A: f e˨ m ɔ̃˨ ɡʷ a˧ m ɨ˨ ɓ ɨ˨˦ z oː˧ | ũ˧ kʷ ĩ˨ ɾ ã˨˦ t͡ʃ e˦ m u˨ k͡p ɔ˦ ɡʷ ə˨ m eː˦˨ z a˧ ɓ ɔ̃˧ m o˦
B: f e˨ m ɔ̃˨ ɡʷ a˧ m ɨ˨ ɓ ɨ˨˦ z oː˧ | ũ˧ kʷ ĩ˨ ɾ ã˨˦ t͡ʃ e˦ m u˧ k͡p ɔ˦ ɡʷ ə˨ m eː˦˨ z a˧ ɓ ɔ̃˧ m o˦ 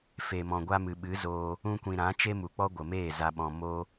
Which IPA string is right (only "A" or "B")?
A